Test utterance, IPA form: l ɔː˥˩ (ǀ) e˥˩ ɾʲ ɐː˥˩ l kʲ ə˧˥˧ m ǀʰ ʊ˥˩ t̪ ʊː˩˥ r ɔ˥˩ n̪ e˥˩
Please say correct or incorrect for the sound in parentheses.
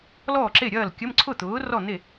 incorrect: ǁ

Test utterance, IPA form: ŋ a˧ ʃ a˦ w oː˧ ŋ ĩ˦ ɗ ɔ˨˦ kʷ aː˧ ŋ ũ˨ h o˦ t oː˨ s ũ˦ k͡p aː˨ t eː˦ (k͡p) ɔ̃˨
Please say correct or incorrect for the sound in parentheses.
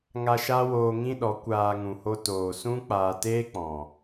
correct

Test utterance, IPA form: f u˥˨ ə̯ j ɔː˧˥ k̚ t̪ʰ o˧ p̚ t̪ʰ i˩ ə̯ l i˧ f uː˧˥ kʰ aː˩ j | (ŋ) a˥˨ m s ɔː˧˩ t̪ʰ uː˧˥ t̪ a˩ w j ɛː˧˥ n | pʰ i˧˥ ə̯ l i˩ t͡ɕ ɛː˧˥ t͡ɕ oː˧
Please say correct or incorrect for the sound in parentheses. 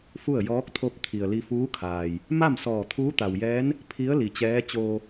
incorrect: m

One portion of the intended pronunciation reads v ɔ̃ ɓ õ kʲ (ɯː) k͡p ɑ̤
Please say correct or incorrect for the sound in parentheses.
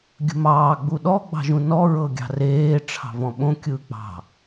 correct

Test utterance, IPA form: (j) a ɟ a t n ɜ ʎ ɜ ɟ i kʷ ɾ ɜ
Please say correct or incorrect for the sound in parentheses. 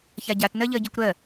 incorrect: ç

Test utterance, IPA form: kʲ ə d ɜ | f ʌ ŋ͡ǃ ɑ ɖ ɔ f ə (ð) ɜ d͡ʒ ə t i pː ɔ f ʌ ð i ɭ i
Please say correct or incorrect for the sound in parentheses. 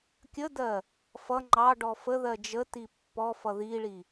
correct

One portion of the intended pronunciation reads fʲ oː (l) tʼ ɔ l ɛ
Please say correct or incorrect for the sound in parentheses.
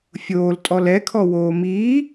correct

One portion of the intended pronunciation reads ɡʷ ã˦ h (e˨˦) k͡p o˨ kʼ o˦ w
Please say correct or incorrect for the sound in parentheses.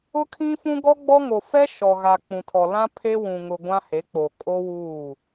correct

